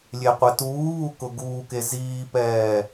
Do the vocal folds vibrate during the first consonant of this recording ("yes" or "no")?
yes